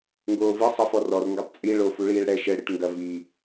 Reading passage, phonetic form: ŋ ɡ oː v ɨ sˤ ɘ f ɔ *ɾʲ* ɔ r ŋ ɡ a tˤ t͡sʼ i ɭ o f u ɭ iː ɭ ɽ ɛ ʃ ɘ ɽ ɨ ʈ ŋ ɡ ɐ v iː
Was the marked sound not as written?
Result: yes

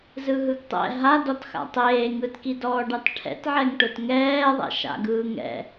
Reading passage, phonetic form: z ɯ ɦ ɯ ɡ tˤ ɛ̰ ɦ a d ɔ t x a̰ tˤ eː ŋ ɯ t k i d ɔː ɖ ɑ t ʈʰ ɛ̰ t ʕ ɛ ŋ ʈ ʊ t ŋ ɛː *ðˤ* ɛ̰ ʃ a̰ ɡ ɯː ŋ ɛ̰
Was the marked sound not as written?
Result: no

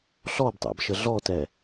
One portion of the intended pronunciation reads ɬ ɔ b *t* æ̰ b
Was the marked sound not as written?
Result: yes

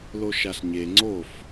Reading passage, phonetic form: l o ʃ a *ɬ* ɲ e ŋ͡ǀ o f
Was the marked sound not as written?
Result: no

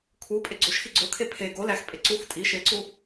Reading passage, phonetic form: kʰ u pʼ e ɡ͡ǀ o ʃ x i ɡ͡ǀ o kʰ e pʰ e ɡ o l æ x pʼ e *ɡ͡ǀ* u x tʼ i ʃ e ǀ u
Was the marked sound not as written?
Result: yes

